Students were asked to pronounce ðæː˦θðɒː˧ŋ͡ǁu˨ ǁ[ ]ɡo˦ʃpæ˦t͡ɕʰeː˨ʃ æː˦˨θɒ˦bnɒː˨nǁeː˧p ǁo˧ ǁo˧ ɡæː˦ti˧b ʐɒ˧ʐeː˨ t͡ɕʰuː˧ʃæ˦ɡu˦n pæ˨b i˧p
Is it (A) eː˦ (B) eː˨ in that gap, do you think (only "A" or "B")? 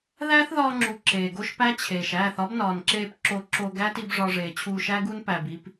B